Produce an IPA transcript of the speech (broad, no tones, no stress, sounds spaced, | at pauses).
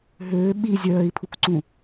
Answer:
ɦ øː ɓ i zʲ œː i̯ pʰ u k ǀ ũ